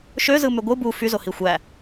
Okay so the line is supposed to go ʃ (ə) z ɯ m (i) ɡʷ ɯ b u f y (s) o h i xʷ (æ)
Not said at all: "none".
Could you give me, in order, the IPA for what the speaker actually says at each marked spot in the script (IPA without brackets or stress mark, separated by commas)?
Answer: ø, y, z, æ